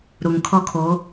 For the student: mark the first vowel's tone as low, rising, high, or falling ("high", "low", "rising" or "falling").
low